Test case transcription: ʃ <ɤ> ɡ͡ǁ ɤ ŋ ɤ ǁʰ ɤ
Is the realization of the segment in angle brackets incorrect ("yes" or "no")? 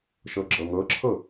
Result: no